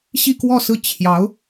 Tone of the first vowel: falling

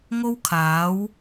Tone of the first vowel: high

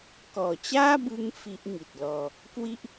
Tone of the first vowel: low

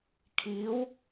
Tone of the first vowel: rising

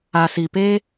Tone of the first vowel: low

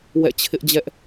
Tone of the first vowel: falling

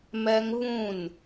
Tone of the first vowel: high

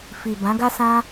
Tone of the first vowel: low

